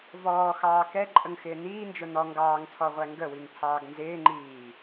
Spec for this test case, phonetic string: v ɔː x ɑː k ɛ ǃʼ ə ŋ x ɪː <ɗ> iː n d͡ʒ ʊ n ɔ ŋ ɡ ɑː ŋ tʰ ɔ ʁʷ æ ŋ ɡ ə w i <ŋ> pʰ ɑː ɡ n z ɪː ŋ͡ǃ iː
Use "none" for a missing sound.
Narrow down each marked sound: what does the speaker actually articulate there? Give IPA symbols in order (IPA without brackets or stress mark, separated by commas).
n, ŋ